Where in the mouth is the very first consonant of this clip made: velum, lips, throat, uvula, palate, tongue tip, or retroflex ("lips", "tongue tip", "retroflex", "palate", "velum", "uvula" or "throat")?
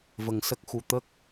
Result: lips